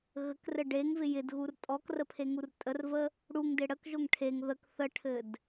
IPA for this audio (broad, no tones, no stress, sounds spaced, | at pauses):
ɣ ə k r ɘ ɖ e ŋ v ɪ j ɪ d ɣ u r tʼ ɔ k r ə pʰ e ŋ u r tʼ ə r v ə | ɽ u ŋ d ɪ ɽ ə k ʒ o ŋ ʈʰ e ŋ ð ə k θ ə ʈʰ ɘ d